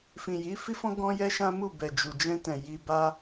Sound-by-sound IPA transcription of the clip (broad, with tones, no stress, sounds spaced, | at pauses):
f ĩ˨ j i˨˦ f i˦ f ɔ̃˦ ɡ ɔ̃˦ j ɛ˦ ʃ ã˦ m u˦˨ b ɛ˨ d͡ʒ u˨ d͡ʒ ɛ̃˧ t ɛ̃˨ j i˧ b a˦